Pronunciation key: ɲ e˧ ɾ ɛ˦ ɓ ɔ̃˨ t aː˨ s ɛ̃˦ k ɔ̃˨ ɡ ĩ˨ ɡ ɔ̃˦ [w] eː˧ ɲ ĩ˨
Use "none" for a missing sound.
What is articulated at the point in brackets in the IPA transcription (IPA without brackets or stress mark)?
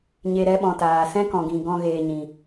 ɣ